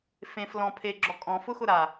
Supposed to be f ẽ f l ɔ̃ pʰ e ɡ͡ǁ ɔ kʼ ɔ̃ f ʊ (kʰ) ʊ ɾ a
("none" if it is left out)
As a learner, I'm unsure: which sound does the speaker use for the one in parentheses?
x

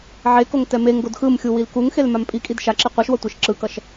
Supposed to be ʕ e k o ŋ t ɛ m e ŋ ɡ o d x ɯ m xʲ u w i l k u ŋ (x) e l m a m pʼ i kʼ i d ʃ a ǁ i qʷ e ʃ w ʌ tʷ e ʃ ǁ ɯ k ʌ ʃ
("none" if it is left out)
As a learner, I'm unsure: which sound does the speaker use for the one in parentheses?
x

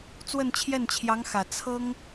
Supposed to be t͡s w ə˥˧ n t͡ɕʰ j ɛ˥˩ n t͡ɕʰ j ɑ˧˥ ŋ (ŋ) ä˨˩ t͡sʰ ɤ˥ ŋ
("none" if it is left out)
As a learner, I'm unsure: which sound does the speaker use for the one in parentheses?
x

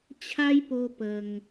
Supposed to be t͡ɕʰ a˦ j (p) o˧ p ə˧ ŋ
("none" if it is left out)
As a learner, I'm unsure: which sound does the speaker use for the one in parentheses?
p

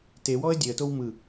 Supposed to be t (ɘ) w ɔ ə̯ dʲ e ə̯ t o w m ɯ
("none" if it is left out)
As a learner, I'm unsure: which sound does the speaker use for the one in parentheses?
e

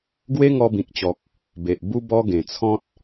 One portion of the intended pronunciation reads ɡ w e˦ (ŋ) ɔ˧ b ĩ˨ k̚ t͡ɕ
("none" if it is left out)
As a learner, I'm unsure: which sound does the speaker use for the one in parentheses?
ŋ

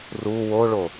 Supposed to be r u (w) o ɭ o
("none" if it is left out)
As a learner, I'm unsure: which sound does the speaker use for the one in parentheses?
w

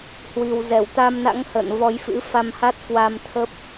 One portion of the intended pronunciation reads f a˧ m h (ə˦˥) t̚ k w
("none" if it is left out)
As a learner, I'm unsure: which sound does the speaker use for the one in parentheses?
a˦˥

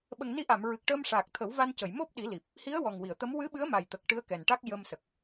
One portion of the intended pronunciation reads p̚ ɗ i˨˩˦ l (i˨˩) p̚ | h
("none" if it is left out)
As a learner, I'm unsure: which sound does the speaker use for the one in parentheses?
i˨˩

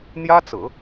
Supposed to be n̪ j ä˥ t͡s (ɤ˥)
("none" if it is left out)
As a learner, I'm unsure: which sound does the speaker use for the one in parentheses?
ɤ̰˨˩˦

